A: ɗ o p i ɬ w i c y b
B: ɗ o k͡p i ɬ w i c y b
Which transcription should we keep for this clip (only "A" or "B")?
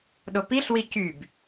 A